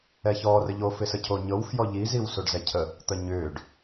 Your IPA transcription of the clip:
ɛ ç ɔː r ə ʎ o f ɪ s ə cʰ o ɲ ɤ w f j ɔ ʎ i z i w s o ɖ z ɛ cʰ ə | t̪ ə ɲ ʏː ɖ

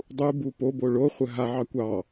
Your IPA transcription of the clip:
dˤ u b u p o b o ɭ o χʷ ə ɦ a ʕ ɑ kʷ ɑ

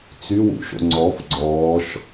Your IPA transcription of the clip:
t͡s y w ṵ ʃ o̰ ŋ͡ǀ ɔ f ɡ͡ǀ ɔː ʃ

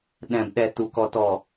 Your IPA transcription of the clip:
ɗ ɛ̃˨ b ɗ ɛ˨ t u˨ k ɔ˨ t ɔ˨

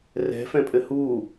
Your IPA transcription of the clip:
r ɛ̤ f ɛ̃ pʼ ɘ h u

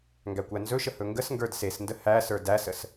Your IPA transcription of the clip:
ŋ ɡ æ kʷ æ n z ɵ ʃ ə h ɵ ŋ ɡ ə s ŋ ɡ ə˞ d s e s n d ə h æ s ə˞ d æ s ə s

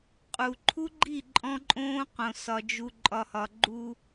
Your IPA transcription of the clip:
qʼ u˨ ǃʰ u˦ ɡ͡ǃ i˦˨ ǃʼ ɔ̃˦ ǃʼ õː˦ q õ˨ s ɒ˨ d͡ʒ u˨ ǃʼ ɒ˨ h ɒ˨ ɡ͡ǃ u˦

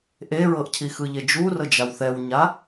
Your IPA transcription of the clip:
ʔ e ɹ ɤ ʔ cʰ i x ɯ ʎ e d͡ʒ u r ɤ d͡ʒ a w θ ɛ w ɲ a

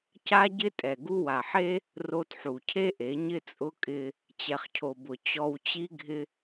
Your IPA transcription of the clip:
c a˦ ɟ ɪ˦ tʼ ɛ˨ ɡ u˧ w a˨ ħ e˦ | r o˧ t ħ u˨ cʰ e˦ ʔ e˨˦ ɲ ɪ˦ t͡sʼ ʊ˦ kʼ ɪ˦ | t͡ɕ ɛ˨ χ cʰ o˨ b ʊ˨ t͡ɕ ɔ˧ w t͡ɕ i˦ ɡʱ ɪ˦

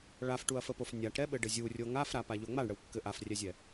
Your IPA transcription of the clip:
ɭ a f ʈ u ɐ̯ f ə p o f nʲ a ʈ ɾ ɛ ɓ ɘ ɖ ɘ zʲ u rʲ o ŋ a f ɾ a p a ʎ o ŋ͡m a ɳ ɽ ə w kː ɘ ʔ a f rʲ ɛ zʲ ɛ

